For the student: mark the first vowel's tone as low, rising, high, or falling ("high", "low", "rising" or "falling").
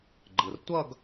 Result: low